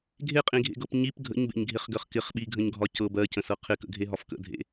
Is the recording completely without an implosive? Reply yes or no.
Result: no